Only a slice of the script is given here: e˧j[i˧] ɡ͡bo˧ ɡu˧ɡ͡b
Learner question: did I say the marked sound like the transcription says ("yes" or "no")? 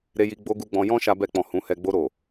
yes